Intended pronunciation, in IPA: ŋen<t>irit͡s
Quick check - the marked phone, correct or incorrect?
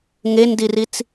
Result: incorrect: d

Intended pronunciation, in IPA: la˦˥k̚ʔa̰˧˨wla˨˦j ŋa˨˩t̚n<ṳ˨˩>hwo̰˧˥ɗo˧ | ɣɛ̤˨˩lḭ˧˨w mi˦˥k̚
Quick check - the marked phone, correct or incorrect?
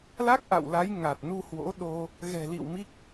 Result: incorrect: u˧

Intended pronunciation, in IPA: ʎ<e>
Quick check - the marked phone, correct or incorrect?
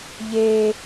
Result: correct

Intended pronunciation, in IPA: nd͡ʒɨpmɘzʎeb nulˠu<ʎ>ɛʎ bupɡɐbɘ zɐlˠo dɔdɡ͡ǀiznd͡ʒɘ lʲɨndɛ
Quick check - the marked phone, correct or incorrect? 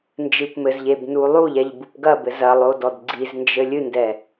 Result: correct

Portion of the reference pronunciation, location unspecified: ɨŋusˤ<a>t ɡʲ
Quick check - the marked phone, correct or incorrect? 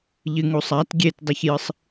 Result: correct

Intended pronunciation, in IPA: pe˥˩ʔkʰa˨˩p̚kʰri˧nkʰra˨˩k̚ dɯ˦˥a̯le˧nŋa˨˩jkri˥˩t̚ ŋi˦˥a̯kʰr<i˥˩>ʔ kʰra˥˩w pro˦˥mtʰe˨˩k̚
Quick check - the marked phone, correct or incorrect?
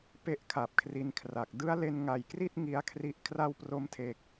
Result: incorrect: i˦˥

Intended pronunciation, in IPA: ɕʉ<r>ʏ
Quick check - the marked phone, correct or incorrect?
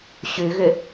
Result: incorrect: ɣ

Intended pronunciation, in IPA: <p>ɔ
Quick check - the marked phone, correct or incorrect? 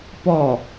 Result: correct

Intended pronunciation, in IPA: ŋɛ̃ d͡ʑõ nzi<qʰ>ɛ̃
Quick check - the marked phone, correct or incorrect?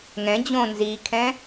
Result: incorrect: kʰ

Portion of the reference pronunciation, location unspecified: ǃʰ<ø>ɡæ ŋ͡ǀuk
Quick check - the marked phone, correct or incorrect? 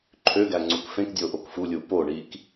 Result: correct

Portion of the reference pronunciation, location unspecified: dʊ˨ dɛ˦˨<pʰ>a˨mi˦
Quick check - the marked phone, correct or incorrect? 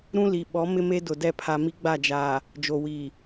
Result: correct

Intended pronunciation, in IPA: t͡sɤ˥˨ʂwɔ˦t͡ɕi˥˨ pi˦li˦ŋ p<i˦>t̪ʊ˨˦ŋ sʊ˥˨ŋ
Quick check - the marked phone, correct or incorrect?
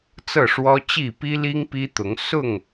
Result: correct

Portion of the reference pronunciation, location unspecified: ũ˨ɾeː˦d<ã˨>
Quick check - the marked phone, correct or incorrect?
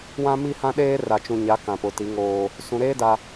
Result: incorrect: a˨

